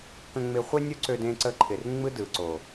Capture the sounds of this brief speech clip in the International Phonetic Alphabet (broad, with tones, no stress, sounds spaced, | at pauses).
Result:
k ə̃˧ ŋ͡m ɪ˧ χʷ e˦ nʲ o˦ ǀ ø˧ d ẽ˧ ǀ ə˧ ǃʰ ɪ˨ r ŋ͡m ɯ˦ d ɯ˨ ǀ o˨